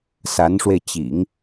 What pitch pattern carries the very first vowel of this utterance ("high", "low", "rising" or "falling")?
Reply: rising